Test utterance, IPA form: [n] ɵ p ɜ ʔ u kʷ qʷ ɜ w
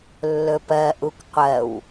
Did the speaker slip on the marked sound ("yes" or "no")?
yes